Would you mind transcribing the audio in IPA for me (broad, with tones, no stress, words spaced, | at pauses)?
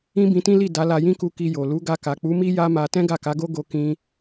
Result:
ĩ˦bĩ˧tĩ˦li˦˨ da˨˦la˧jĩ˦ku˧ ki˧jo˨ lu˨˦ɡa˧ka˨ k͡pu˨˦mi˦ ja˦ma˧ tɛ̃˦ɡa˦˨ka˨˦ɡo˦ ɡo˦kĩ˦